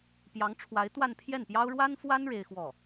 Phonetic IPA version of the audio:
p j ɑ˧˥ ŋ ʈ͡ʂʰ w a˧˥ ɪ̯ t̪ w a˥˧ n pʰ j ɛ˥˩ n p j ɑ˥ ʊ̯ ɻ w a˥ n f w a˥ n ɻ e˥ ɪ̯ x w ɔ˥˩

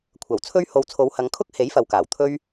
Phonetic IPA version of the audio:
kʷʰ ɐ˨˩ w t͡sʰ ɵ˥ ɥ h o˧ w t͡sʰ o˨˧ w h ɐ˨˧ ŋ kʰ ʊ˥ k̚ h e˨˥ j f ɐ˨ w k aː˨˩ w t̪ʰ ɵ˥ ɥ

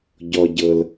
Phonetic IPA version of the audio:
ɟ ɔ˥ ɟ ɤ˥ l

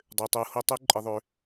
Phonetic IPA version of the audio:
dˤ ø˩ tˤ u˩˧ h o˧ tˤ u˧˥ ǃʼ ɪ˩˧ ðˤ ø˩˧

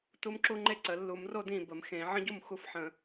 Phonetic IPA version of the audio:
t u˦˥ m ǁ u˦˥ ŋ͡ǃ e˥˨ ǀ ə˨˩˦ lː u˨˩˦ m r o˥˨ d ĩ˥˨ b ə˨˩˦ m x ẽ˨˩˦ ʕ ə̃˦˥ ɟ u˥˨ m x u˦˥ f ħ ə̃˨˩˦

